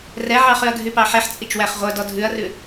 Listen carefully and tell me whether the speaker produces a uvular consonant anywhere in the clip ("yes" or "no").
yes